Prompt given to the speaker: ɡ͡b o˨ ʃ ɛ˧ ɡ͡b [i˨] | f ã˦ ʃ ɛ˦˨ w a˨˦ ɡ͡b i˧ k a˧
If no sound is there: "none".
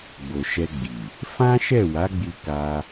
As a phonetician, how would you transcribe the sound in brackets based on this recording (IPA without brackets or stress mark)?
i˨